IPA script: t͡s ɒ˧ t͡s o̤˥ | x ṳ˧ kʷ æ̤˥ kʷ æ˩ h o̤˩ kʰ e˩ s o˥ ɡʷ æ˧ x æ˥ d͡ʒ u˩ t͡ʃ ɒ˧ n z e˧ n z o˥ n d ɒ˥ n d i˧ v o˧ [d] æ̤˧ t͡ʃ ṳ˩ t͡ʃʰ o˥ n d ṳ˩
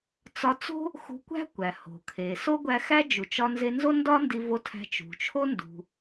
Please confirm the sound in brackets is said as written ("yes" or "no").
no